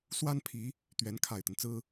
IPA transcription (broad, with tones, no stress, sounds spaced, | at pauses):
s w a˥ n pʰ i˧˥ | t̪ ɥ ɛ˧˥ n kʰ a˨˩ ɪ̯ t̪ ə˦ n t͡s ɹ̩˥